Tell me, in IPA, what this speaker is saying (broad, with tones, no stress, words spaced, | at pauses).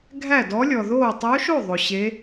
ɡʱæ˥˨dɔ˧˥lʲɔ˨ðoː˥˨ tˤo˧˥ʃo˥˨ ðˤo˨ ɕe˧˥